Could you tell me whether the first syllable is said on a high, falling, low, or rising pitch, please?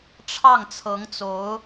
falling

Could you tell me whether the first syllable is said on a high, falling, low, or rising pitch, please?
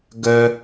low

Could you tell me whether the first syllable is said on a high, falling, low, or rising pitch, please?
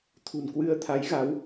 low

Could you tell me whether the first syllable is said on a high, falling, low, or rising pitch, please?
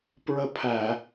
falling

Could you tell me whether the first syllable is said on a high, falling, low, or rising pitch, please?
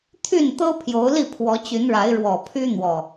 falling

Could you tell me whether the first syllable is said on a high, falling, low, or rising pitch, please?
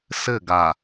falling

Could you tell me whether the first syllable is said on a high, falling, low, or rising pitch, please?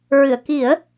low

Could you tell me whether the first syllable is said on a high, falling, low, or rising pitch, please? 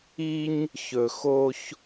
high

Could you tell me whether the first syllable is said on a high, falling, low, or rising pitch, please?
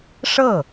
falling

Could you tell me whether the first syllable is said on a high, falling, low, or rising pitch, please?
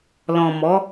low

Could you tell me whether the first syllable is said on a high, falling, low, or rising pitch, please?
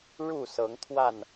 falling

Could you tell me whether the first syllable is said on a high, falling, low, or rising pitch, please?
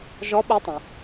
rising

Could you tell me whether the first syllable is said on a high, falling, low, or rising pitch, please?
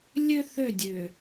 high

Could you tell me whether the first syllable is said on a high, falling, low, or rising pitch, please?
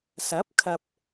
rising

